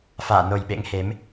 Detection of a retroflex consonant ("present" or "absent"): absent